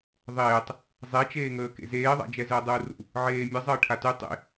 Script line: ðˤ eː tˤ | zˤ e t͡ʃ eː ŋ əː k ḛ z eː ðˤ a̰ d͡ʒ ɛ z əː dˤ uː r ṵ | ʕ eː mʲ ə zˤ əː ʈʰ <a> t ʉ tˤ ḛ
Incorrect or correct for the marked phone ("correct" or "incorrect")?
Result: correct